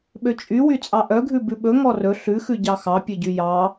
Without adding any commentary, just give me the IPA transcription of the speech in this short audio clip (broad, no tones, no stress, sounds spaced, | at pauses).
ɓ ø t͡ʃʼ y w y t͡sʼ ɑ ʔ œ ɡʱ ʉ b ʉ ɓ ɵ ŋ ɔ r ɵ ɬ ʉ x ʉ ɟ ɑ x ɑ pʲ ɵ ɟ y j ɑ